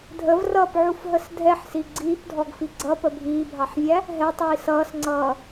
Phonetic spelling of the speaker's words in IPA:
dʱ ə v r ʌː p ʕ u f ɦ ə s dʱ ɛ ħ s i ɡ͡ǀ iː p dʱ ɔ ɡ f i ɡ͡ǀ ʌ p ə bʱ iː bʱ ɑ ħ vʲ æ | ɦ ɛ tˤ iː s ʌː s ŋ͡ǀ ʌː

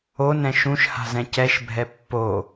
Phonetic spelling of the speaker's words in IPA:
o n ɛ̃ ʃ ũ ʃ h a̤ z ɛ̃ c ɛ ʃ bʱ ɛ pː o

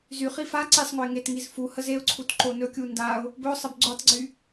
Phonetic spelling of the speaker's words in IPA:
z y χ i f a ǀ i sˤ ŋ o ɪ̯ ŋ e t ŋ i z f u h ə z e ʊ̯ ǀʰ u t ǃ o n ɵ kʲ u n d a ʊ̯ | b ɵ ʊ̯ sˤ ə b ɡ͡ǀ o tˤ ɡ͡ǀ y

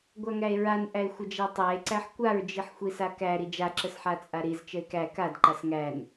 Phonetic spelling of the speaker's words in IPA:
ɡʷ a ŋ æ e̯ ɹ a n ʔ æ e̯ xʷ ə d͡ʒ æ tˤ æ e̯ ǀ æ ħ kʷ a ɹ d͡ʒ i ħ xʷ i s a k æ ɾ i d͡ʒ a ǁ ə s ħ a t͡sʼ a ɾ i z t͡ʃ ə e̯ k æ k a d ǃ a s ŋ æ n

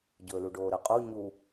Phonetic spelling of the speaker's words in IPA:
ɟ ɵː l u ɖ oː ɾ ə qʼ u ɲ u

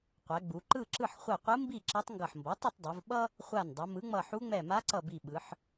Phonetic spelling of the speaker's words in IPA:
qʷ ɛ˩˧ ɡ͡b u˩˧ ǃ ɯ˥˨ ǁ ɯ˥˨ ħ χʷ ɛ˧˩ qʷ ɯ˧˥ m b i˥˨ ǁ ʌ˧˥ tˤ ŋ ɡ ʌ˧˩ ħ m b ʌ˩˥ tˤ ʌ˥˨ tˤ dˤ ɯ˩˧ v ɓ ʌ˥ | χʷ a˧˩ n dˤ ʌ˩˧ m ɯ˩˥ ŋ͡m ʌ˧˩ ħ u˧˥ ŋ͡m ɛ˧˩ m a˧˥ ǀ ʌ˧˩ b i˧˩ ɓ ɯ˩˧ ħ

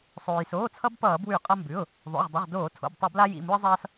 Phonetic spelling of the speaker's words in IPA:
sˤ oː˩ j s oː˩˧˩ t͡sʰ ʌ˧ b p ʌː˧˩˧ b w ʉ˧˩˧ qʼ ʌ˧ m b ʉ˩˧˩ ʊ̯ | ðˤ o̰˩˧˩ ʁ dˤ ʊ˩˧˩ ʁ d oː˧˩˧ tʰ o̰˩˧˩ b tˤ ɘ˧˩˧ b l a˧ j ḭ˩˧˩ m u˧ ɪ̯ zˤ ʌː˧ s

